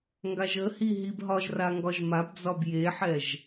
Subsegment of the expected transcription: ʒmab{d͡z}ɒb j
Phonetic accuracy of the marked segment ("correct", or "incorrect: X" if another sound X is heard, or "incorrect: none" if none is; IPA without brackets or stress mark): correct